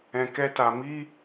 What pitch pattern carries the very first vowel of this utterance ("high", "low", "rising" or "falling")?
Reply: low